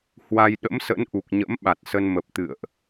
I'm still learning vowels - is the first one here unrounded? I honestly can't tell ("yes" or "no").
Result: yes